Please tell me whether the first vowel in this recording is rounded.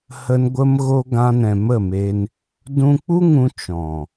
no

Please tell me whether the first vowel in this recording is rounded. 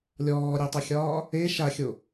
yes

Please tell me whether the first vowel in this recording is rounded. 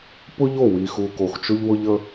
yes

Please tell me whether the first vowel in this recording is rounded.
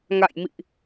no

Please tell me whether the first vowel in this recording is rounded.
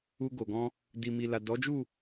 yes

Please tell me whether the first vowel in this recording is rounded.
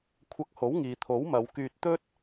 no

